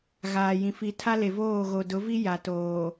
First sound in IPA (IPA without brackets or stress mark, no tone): ɣ